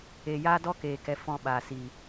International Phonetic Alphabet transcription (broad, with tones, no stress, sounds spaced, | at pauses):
eː˧ j aː˦ d ɔ˧ k eː˨ k ɛ˨ f ɔ̃˧ ɓ aː˨ s iː˨